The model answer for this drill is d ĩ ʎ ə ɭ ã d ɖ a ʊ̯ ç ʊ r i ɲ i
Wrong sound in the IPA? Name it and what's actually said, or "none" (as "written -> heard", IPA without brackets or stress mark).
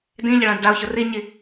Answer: none